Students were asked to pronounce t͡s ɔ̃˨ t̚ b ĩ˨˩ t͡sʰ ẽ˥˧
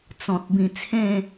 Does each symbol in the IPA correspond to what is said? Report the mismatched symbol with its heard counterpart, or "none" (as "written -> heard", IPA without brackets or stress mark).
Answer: none